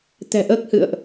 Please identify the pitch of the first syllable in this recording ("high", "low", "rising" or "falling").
low